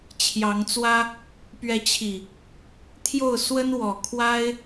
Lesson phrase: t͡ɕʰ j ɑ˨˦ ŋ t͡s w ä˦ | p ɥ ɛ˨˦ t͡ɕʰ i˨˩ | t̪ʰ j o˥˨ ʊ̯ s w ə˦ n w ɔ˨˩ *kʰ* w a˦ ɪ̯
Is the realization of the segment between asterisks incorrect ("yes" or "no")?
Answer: no